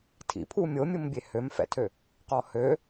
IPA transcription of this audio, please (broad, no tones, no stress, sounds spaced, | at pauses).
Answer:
tʰ ḭ pʰ u mʲ o mʲ u m bʲ e h ø m f ɛ̰ tʰ ø | q ɔ h ø